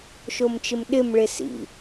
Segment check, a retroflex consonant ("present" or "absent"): present